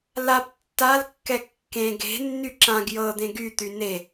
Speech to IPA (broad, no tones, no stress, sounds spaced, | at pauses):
l a p tː a l kː ɛ kː ẽ ɡ e̤ nː y ǁ ã ɡ j ɤ d̪ ẽ ɡ y t̪ y n e